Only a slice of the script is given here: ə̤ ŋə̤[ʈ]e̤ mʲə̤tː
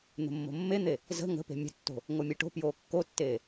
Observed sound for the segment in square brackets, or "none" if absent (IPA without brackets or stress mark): p